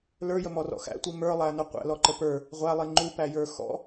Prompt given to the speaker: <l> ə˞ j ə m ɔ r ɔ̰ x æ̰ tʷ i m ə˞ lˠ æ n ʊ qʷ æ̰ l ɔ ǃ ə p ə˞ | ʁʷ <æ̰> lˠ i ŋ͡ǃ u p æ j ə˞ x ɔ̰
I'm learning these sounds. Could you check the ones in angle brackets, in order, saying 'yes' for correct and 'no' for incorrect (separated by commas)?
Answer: yes, no